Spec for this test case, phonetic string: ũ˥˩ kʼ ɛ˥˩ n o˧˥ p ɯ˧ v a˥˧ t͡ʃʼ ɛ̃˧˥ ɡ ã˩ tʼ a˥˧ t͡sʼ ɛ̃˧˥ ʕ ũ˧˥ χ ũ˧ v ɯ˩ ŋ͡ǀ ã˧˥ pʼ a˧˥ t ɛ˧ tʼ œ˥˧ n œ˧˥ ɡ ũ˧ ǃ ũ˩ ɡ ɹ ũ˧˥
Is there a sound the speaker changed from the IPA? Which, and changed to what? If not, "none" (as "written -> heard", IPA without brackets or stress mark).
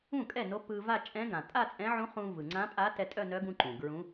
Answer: none